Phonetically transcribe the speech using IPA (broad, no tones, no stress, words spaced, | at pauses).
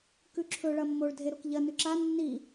kʉǁʰɵɭɐ mːoɭdʱe ɾokʎɐnʉ ǁa nːi